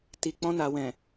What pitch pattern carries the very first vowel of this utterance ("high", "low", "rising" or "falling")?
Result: low